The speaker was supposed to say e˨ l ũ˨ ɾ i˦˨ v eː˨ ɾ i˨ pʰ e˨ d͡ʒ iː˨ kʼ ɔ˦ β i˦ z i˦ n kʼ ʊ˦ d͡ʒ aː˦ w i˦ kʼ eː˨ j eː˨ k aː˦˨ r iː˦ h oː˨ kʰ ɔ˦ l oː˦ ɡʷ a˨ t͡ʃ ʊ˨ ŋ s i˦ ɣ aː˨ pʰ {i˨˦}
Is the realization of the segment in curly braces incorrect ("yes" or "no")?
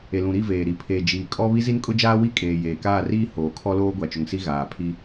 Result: yes